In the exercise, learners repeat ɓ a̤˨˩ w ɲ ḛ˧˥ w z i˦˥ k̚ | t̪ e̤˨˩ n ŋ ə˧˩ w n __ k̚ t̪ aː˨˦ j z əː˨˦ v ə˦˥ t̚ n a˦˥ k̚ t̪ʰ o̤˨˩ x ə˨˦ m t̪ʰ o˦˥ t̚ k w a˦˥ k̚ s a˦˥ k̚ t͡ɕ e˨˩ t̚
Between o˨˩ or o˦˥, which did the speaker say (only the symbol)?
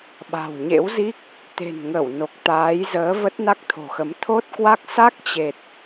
o˨˩